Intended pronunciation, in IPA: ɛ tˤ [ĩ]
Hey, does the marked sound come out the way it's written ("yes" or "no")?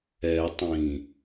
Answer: yes